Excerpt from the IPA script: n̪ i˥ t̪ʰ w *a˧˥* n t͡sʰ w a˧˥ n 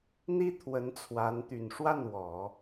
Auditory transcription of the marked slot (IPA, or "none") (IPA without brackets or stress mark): ə˧˥